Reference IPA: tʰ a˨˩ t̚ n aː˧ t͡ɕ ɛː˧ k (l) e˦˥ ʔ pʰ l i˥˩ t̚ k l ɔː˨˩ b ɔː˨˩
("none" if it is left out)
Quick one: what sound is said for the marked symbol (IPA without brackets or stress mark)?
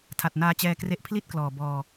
r